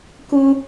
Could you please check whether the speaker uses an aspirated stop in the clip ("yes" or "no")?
no